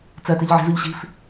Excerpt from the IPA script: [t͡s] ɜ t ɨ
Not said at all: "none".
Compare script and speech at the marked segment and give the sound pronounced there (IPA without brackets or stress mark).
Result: t͡s